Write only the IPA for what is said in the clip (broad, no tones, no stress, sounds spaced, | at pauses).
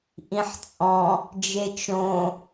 ʔ ĩ ħ t͡sʼ ɔ̃ | d͡ʒ e t͡ʃ õ